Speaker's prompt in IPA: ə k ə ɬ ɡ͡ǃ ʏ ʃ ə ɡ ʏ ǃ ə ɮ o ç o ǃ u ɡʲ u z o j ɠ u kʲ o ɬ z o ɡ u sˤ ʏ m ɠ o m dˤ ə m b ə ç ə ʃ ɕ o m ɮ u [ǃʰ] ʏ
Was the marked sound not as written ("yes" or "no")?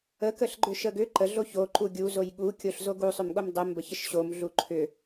no